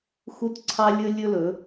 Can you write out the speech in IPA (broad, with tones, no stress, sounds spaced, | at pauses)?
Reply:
x u˦ t ǀʰ ɑ˦ lʲ ɵ˦ lʲ ɵ˦ l ɵ˨˦